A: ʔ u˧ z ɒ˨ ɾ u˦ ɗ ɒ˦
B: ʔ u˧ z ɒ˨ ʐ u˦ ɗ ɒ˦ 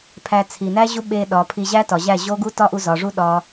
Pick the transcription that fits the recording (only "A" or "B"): B